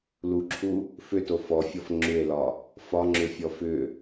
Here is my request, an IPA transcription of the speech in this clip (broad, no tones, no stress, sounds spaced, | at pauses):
l u ǁʰ u | f ʏ t o f ɔ fʲ ɔ f ŋ͡ǁ ʏ e̯ l ɒ | f ɒ ŋ͡ǁ ʏ fʲ ɔ f ʏ